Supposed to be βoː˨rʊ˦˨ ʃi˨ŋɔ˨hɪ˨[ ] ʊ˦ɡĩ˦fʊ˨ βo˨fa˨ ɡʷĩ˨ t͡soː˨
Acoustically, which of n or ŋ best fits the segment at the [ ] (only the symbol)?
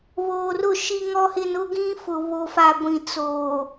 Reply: n